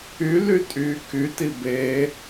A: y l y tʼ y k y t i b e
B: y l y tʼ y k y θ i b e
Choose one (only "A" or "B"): A